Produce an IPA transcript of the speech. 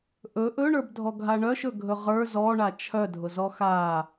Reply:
ʔ ɵ ʔ ɵ ɳ ə˞ b dʱ ɔ ɡʱ a ɳ œ ʃ ɵ ɡʱ ɵ ʁ ə˞ z ɔ ɳ a t͡ʃʰ œ dʱ ʊ z ɔ x a

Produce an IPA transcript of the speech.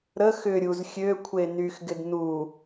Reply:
ɾ ə x ʏ ɾʲ u z xʲ ø kʷʰ e n y x ɡ ɪ d n u

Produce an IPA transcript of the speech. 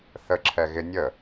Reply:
θ ə ǁʰ ɛ ɣ ɪ nʲ ə

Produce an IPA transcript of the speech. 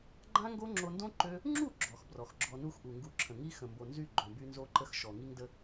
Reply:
ɡ͡ǃ ã˦ ŋ ɡ o˦ ŋ͡ǁ o˧ n d õ˦ ǃ ø˦ | ŋ͡ǁ u˦˨ ɡ͡ǁ ɔ˨ x b r ɔ˨ x ɡ͡ǁ ɔ˧ n u˦ x ʔ u˨ ŋ ɡ u˧ ǁʰ ə̃˨ ŋ i˦ x ə̃˨ m b o˨ n z y˦˨ ɡ͡ǃ õ˧ b y˦ n z o˦ ǃ ə˦ x ʃ ɔ˨ ŋ i˦ ŋ d ə˦

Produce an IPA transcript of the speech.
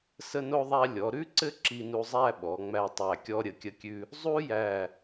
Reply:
s ə˧ n o˧ ðˤ æ˧ lʲ ɔ˩˧ ɾ ʉ˥ ǀ ɘ˥ ǁ i˧ n u˧ zˤ æ˥˧ ɓ ɔ˩˧ ŋ͡m æ˧ tˤ æ˧˩ kʲ ɔ˧ ɾʲ ə˩˧ kʲ ə˧ kʲ ʉ˧ | zˤ u˥ j æ˧˩

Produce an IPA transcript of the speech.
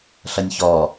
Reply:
ɬ ʌ nʲ ç ɔ

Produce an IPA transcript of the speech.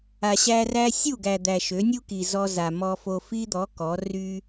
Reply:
a˨ ɕ æ˧ r æ˦ sʲ u˦˨ ɡ æ˨ d̪ æ˨ ʃ ø˨˦ nʲ u˦ k i˨ z ɔ˧ z a˨ m ɔ˧ f o˧ f i˦ d̪ ɔ˨˦ k ɔ˨˦ r y˧

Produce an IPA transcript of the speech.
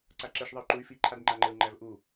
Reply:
ǀ a ǁ ɘ ʃ ðˤ ɘ y̯ ǃ u y̯ f i ǃʰ a d ŋ͡ǃ a ŋ͡ǃ ɘ u̯ ŋ͡ǃ æ v ʔ u

